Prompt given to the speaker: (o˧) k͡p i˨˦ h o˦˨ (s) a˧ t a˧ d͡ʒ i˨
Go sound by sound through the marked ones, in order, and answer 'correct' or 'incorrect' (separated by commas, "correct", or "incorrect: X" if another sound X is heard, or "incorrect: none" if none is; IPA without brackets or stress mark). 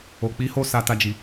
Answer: incorrect: o˨, correct